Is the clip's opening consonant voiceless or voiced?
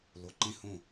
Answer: voiced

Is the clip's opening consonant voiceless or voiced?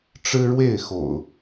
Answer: voiceless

